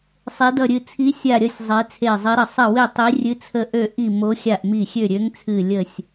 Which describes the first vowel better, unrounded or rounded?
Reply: unrounded